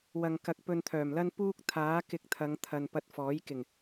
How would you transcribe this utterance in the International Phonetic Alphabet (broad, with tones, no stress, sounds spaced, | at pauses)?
w ɐ˧ ŋ k ɐ˧ k̚ p ɵ˧ n t̪ʰ œː˨˩ m l ɐ˥ n p uː˥ k̚ t̪ʰ aː˨˥ k ɪ˧ k̚ t̪ʰ ɐ˨˧ ŋ t̪ʰ ɐ˨ n p ɐ˧ t̚ f ɔː˨˥ j k ɪ˨˩ ŋ